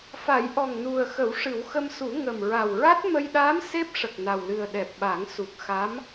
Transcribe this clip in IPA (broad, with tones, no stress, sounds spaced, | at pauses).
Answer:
f a˨˩˦ j ʔ ɔ˨˩ ŋ n u˨˩ ə̯ x ə˨˩˦ w ʂ ɨ˨˩˦ w x ə˧ m s u˨˩˦ ŋ ə˨˩ m ɹ a˨˩ w ɹ a˦˥ t̚ m ə˧ j ɗ aː˧˥ m s e˦˥ p̚ ʂ ə˨˩ k̚ n a˨˩ w l ɨ˨˩ ə̯ ɗ ɛ˨˩ p̚ ɓ a˨˩˦ ŋ s u˨˩ k̚ x a˧˥ m